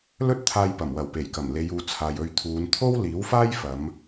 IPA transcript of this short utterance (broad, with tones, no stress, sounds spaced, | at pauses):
l ɵ˥ t̚ t̪ʰ aː˧ j p ɐ˨˩ m w ɐ˨˩ w p e˨˩ j k ɐ˨˩ m l e˨˧ j uː˨˧ t͡sʰ aː˨ j ɵ˧ ɥ t̪ʰ uː˨˧ n t̪ʰ o˥ w l iː˨˥ w f aː˥ j f ɐ˨˧ m